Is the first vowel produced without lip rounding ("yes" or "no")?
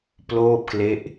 no